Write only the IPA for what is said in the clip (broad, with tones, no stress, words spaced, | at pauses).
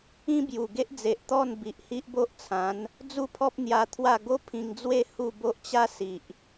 ĩ˦bju˨˩ ɡe˦ʔd͡ze˨ʔ t̪ɔ˥˧n bi˨ʔhi˦ʔbo˦ʔt͡sʰã˨˦n | d͡zu˥˧pʰɔ˦p̚ n̪ja˧ t̪ʰwa˥˧ ɡo˦ pʰĩ˧ŋd͡zwe˥˧ hu˥˧ bo˦ʔt͡ɕa˦ si˨ʔ